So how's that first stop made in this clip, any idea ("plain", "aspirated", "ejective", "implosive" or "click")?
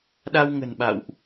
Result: implosive